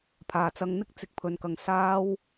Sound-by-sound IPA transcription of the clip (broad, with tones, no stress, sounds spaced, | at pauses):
pʰ aː˨ t͡s ɐ˧ ŋ n̪ ɪ˥ k̚ t͡s ɪ˧ k̚ pʰ ɵ˧ n k ɐ˧ ŋ s aː˥ w